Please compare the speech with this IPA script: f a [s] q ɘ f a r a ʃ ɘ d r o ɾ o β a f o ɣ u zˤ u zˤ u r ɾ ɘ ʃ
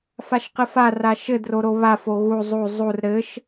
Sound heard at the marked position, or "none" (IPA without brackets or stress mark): ʃ